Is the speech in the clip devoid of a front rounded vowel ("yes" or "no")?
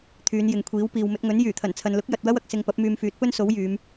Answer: no